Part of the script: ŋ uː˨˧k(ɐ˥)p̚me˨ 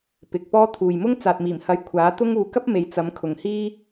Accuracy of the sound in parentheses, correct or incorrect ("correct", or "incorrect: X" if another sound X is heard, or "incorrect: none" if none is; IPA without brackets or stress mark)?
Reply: correct